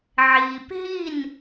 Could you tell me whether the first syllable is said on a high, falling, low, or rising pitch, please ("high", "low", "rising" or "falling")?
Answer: low